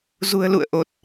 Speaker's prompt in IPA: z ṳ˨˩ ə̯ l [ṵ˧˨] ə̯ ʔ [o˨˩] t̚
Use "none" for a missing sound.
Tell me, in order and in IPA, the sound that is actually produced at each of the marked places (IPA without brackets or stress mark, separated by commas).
ṵ˧˨, o˨˩